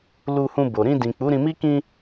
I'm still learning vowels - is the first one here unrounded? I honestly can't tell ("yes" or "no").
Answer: no